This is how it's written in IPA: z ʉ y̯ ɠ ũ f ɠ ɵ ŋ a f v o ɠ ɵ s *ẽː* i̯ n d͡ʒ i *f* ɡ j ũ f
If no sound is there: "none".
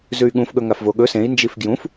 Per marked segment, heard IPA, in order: ẽ, f

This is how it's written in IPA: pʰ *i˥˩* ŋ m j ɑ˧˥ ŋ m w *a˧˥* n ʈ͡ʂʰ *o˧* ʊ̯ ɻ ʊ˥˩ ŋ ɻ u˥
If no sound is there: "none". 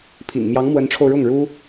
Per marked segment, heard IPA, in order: ḭ˨˩, ə˧˥, o˧

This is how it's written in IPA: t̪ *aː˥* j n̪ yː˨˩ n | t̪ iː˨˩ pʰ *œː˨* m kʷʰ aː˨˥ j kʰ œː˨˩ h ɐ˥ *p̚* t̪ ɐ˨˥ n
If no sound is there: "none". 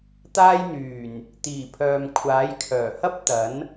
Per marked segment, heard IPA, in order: aː˥, œː˨, p̚

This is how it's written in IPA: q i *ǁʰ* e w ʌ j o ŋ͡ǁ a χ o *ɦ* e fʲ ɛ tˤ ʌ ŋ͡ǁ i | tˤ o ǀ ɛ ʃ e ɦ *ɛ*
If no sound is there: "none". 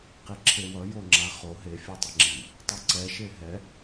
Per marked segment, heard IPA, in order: ǁʰ, ɦ, ɛ

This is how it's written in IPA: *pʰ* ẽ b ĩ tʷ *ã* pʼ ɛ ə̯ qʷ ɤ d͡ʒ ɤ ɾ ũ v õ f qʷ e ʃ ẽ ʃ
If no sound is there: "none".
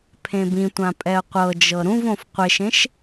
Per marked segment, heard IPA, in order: pʰ, ã

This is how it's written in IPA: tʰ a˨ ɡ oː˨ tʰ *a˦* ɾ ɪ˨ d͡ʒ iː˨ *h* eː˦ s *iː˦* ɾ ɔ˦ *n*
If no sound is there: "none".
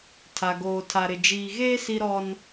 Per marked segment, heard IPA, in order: a˨, ɣ, i˦, n

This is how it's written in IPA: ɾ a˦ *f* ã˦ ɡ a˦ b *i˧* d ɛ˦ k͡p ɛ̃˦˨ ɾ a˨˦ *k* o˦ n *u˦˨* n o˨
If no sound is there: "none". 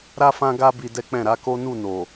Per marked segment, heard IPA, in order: f, i˧, k, u˦˨

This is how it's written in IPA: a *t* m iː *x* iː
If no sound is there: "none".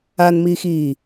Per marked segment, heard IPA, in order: n, x

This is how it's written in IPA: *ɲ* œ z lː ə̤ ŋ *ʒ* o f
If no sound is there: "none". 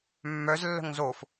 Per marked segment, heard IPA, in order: mː, z

